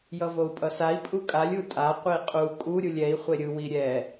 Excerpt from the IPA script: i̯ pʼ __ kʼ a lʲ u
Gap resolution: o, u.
u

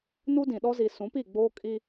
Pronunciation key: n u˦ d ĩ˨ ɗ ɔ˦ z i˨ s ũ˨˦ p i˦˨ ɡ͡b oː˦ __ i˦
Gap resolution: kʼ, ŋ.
kʼ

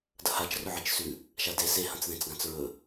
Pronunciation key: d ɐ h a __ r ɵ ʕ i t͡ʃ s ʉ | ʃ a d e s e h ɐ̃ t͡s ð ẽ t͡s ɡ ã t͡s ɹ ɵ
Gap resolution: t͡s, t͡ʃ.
t͡ʃ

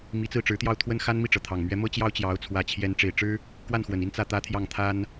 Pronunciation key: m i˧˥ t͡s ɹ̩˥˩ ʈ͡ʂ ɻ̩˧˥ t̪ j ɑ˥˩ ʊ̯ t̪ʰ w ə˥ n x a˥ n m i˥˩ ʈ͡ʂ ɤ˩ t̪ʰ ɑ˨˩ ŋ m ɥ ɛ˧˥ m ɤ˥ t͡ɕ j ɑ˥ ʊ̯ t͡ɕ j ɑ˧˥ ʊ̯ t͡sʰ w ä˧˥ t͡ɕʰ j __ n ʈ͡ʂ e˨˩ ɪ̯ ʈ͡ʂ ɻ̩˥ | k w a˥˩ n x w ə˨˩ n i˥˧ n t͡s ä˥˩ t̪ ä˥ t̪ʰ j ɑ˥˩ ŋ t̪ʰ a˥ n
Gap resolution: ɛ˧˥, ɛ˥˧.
ɛ˧˥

